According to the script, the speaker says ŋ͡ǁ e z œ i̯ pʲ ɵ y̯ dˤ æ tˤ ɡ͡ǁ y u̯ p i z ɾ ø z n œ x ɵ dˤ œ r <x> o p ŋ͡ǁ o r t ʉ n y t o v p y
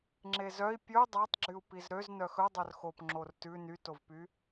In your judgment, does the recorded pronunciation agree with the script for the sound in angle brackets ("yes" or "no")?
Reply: yes